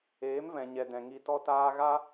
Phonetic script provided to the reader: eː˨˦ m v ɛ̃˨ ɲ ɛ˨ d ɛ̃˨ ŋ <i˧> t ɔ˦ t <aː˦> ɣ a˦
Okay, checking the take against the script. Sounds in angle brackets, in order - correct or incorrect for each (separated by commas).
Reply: correct, correct